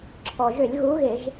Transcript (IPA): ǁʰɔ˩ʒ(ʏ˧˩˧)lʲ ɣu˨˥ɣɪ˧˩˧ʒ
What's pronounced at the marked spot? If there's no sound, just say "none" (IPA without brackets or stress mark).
ʏ˧˩˧